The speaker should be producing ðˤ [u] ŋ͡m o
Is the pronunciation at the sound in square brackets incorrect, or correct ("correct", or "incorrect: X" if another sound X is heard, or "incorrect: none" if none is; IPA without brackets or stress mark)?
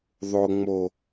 incorrect: o